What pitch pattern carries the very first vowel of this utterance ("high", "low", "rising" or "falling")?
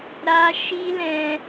high